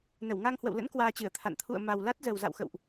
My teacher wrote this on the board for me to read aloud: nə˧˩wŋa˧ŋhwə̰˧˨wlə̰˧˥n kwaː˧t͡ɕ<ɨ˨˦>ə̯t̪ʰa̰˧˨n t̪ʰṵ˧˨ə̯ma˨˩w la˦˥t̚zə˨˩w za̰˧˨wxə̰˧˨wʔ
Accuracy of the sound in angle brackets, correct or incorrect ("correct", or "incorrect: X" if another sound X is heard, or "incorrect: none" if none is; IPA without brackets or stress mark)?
incorrect: ɨ˧˩